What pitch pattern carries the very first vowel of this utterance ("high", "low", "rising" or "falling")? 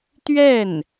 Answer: falling